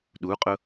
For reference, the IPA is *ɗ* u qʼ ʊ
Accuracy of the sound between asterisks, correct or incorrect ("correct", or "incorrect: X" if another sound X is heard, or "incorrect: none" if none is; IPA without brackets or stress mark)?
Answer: correct